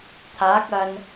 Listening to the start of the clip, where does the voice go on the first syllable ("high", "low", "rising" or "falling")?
rising